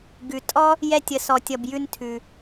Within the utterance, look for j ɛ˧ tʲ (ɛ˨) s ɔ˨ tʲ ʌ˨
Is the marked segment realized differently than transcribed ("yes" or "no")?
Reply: yes